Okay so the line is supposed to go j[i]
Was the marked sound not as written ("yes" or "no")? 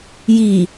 no